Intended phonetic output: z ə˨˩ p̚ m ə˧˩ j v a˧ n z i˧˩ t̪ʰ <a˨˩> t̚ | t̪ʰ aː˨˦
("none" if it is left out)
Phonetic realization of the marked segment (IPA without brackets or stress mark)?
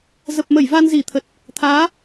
ə˨˩